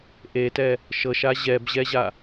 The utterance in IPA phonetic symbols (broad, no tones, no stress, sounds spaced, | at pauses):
ʔ e t ɛ | ʃ ɤ ʃ a ʑ ɛ b ʑ ɛ ʑ a